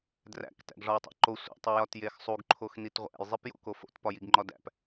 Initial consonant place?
alveolar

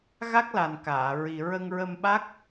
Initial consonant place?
velar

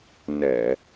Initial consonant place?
alveolar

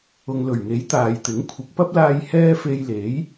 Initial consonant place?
velar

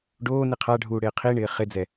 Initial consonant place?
retroflex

